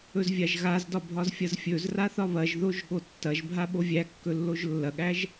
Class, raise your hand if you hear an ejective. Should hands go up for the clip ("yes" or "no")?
no